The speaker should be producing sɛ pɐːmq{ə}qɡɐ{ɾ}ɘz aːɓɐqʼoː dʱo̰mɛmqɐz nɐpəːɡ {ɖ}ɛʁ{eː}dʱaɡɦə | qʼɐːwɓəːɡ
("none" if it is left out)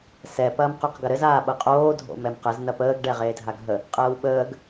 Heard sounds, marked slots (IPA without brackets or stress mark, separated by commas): ø, ɾ, ɖ, eː